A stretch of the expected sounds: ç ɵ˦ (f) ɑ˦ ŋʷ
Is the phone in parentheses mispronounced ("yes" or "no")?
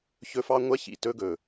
no